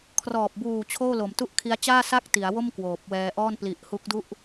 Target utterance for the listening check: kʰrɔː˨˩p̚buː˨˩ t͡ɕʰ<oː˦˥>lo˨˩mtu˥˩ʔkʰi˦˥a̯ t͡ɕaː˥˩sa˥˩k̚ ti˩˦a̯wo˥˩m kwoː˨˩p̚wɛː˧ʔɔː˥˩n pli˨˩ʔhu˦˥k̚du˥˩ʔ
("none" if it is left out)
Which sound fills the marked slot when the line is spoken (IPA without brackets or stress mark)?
oː˥˩